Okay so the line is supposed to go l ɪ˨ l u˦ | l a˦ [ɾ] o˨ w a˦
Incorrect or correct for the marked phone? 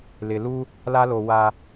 incorrect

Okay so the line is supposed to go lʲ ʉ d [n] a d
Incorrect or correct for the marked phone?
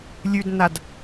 correct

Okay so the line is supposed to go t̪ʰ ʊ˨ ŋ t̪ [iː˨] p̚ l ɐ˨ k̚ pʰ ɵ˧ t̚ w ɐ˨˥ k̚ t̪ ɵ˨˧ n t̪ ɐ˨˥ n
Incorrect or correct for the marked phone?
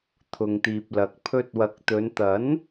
correct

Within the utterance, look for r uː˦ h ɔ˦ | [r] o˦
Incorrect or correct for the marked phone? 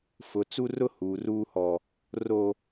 correct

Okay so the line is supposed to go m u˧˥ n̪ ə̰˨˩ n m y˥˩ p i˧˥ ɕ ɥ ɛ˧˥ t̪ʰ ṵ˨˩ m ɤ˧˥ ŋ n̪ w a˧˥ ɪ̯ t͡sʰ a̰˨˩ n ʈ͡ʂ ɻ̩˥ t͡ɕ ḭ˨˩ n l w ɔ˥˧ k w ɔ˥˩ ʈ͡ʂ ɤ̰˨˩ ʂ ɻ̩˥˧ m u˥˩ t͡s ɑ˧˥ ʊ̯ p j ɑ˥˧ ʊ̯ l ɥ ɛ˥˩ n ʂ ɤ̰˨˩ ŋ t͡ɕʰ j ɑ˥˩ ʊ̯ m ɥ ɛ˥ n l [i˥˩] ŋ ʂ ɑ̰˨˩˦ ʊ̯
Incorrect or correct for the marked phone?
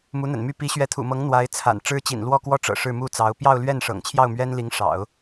incorrect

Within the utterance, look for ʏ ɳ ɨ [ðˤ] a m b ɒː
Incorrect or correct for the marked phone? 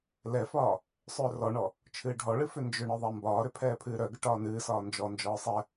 correct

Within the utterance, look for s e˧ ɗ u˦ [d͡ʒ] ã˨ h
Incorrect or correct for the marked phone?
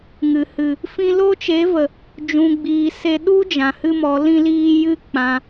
correct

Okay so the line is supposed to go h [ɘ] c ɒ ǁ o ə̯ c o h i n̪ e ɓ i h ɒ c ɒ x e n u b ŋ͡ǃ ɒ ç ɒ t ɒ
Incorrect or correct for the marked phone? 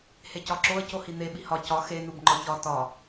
incorrect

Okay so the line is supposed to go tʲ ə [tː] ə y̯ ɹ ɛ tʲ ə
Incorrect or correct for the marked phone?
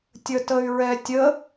incorrect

